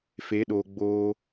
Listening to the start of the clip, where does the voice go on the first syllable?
rising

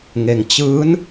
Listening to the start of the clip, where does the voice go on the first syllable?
low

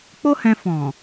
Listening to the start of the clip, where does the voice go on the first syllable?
high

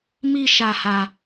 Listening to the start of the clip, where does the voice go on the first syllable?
high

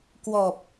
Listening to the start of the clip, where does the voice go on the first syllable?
low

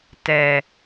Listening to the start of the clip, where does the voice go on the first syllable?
low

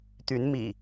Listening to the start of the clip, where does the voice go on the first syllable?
rising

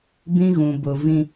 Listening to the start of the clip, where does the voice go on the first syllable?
high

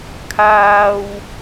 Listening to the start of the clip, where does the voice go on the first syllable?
high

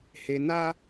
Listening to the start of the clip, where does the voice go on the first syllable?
low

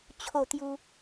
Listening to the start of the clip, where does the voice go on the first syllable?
falling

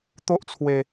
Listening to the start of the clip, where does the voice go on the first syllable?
high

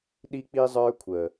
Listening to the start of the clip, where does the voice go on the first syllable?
high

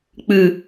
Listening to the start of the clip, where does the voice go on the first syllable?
low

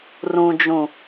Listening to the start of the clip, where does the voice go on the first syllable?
low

